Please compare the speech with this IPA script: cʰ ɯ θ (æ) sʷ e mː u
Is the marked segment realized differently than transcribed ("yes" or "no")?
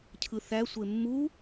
no